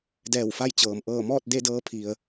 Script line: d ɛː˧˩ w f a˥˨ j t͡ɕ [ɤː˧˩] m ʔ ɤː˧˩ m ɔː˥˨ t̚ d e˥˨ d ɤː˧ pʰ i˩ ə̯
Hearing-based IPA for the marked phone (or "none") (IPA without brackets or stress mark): ɤː˩